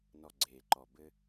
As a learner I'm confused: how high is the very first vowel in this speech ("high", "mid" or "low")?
mid